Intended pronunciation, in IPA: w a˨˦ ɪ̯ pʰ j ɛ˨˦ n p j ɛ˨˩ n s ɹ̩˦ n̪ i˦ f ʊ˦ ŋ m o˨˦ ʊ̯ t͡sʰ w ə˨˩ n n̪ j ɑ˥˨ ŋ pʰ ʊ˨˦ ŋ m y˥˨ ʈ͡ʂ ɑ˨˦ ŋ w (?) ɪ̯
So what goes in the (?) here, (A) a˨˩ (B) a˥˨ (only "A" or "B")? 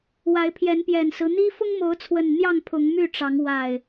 A